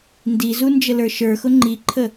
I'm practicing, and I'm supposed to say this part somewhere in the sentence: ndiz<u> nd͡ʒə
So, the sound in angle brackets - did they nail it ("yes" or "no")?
yes